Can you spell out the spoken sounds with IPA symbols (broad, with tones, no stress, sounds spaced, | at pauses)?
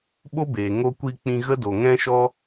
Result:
ɓ o˦ b eː˨ ŋ o˧ kʷ i˧ k͡p ĩ˧ ɣ ə˦ d o˨ ŋ ɛ̃˦ ʃ ɔ˦